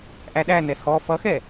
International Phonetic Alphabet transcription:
ʔæɗænɛ hɔ fʌxɛ

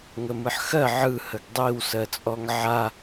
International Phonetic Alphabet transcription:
ŋəmɯħxɜ ʕɯ həɡdˤiw sɜt͡sʼɔŋʕa

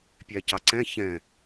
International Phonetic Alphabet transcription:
pʲæcɑǀɛ̃ çɛ̃

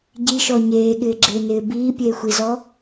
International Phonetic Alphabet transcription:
ɟiʃɔ ɲeːɠɪːɡ͡ǁɪːnɪː biːpʲeːxʷizɔ

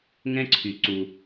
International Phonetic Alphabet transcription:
ŋɛ̃˦ǀʰy˩ ǀu˩

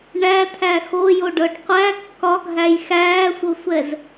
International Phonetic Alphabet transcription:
ɳæt̪ʰæ xojoɖɤɖ qʷæ kːɒɡʱæj xæːsʷɤsʷɛz

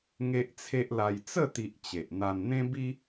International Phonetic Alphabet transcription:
ŋe˦ʔt͡sʰe˦ʔla˧j t͡sə˥˧t̪i˨ʔ t͡ɕe˨ʔn̪a˧n n̪ẽ˦bi˦

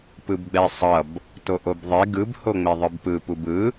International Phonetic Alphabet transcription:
pɯbɡ͡bɛsˤʌb | toʔobðˤe ɡɯb hoŋ͡meðˤɯbpɯ pubɯ

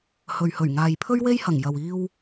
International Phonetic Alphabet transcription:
hɵ˨ɥhɵ˨˩ɥ ŋaː˨jpʰɵ˥ɥwe˥jhɐ˨˩ŋ jɐ˨wiː˧w

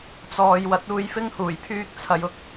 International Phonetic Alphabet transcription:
t͡sɔː˨j wɐ˨˥t̚uː˧jfɪ˥ŋhuː˨˩j pʰyː˥k̚t͡sʰɐ˧j ʊ˥k̚

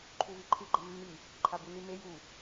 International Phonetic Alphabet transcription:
ǃʰuviǃʰɨ ɡ͡ǃɐmːi | ǃʰabunime ju

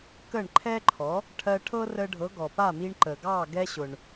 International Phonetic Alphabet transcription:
kə˥˩ɳǃʰɛ˥ǃʰɔ˩˥ | ʈʰɜ˧ʈʰɤ˥rə˧ɖʱɤ˩˥ ɡɔ˩ pa˥˩mi˧ɳ ǃə˩ ɡɑ˥˩ ɡɛ˧ɕʊ˩ɳ

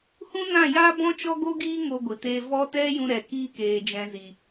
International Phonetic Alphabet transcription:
hũ˦nã˦˨ja˦ bɔ̃˦t͡ʃɔ˦ɡo˦ɡiː˦ ŋo˧ ɡʷɨ˨teː˧vɔ˦ tɛ˦jũ˧ ɾɛ˨kiː˧keː˨d͡ʒɛ̃˨ zi˨

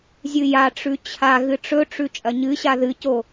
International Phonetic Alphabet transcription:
zʲɨjaʈ͡ʂʉ t͡ɕʰa ɣɨʈ͡ʂɵʈ͡ʂʉ t͡ʃʼɐɲɨɕa ðɨco

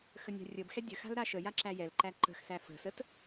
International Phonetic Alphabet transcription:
xənʲa̤rʲəbxɛ dʲəxa̤l ɾaʃəja ǁæjɛlǃæ ǃə̤xsæ fə̤sət

